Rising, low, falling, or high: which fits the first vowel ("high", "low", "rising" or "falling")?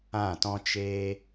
falling